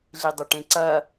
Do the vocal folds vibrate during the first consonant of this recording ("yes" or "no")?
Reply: yes